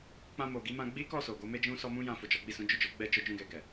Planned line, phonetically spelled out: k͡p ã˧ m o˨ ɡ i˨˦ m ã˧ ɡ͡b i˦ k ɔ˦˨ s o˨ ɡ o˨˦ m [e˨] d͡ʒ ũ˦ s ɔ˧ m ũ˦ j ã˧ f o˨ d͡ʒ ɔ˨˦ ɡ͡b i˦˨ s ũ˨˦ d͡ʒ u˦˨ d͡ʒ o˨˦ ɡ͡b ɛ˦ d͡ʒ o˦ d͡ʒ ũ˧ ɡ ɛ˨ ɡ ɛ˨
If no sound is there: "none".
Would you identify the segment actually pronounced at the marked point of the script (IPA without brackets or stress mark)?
e˦